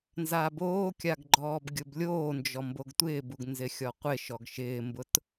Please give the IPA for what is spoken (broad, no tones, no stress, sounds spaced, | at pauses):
n z a b oː kʲ a ɡ ɡ͡ǃ ɔː b ɡʲ ʊ b lʲ oː n d͡ʒ ɔ m b o ɡ tʷ ɪː b u ɡ n z ɪ xʲ ɔ qʷ ɪ ʃ ɔ ɡ ʃ ɪː m b ʊ t